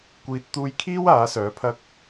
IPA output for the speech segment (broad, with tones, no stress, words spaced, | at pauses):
kʷiː˨t̚t̪uː˧jkʰiː˥w aː˨˥sœː˨˥pʰɐ˥k̚